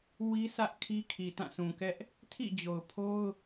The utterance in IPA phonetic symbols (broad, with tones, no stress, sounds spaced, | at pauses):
w i˦ sʰ ä˦ ʔ kʰ i˦ kʰ i˨ t ã˦˨ sʰ ũ˨ k ɛ˦ ʔ | tʰ ḭ˦˨ d͡ʑ o˨ ʊ̯ pʰ o˦ ʊ̯